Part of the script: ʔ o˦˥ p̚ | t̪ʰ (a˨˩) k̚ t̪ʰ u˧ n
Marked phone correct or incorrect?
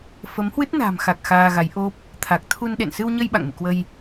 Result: correct